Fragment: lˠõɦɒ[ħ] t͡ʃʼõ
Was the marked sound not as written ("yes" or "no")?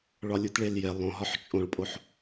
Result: no